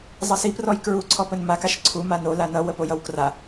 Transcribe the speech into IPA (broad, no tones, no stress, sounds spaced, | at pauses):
zˤ ʌ s i p r ɔ j k ɹ u ǀʰ ɔ p ə n m a k a ʃ ǀʰ u m a n o l a n ʌ w ə p o j ʌ w k r a